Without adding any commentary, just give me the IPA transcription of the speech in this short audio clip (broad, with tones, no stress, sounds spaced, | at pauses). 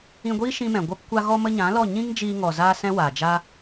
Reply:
ĩ˧ ɡʷ iː˦ ʃ ĩ˧ m ɛ̃˨ ɡʷ a˧ p kʷ a˧ ɣ ɔ˧ m ə˧ ɲ ã˨˦ l ɔ˦˨ ɲ ĩ˦ ŋ d͡ʒ iː˧ ŋ ɔ˨ z aː˦ s ɛ̃˦ w aː˨ d͡ʒ a˦